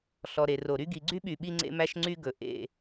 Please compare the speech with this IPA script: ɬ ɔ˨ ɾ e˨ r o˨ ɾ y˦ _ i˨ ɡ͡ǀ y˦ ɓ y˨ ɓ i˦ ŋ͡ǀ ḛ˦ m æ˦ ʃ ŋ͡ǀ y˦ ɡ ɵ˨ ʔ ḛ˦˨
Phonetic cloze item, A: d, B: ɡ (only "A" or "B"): B